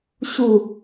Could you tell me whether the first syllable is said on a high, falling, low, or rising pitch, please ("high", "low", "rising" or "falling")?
low